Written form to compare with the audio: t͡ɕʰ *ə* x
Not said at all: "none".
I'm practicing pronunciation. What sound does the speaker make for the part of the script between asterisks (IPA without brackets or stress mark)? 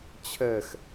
ɛ